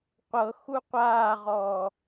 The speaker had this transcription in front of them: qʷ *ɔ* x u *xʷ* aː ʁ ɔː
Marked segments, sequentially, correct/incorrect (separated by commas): incorrect, incorrect